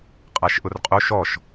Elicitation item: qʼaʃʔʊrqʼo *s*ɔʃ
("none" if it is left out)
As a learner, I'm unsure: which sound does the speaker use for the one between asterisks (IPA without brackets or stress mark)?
ʃ